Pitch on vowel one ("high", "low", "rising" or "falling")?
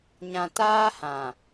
low